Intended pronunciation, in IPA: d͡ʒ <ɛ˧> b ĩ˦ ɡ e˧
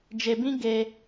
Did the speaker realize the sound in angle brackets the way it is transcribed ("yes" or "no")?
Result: no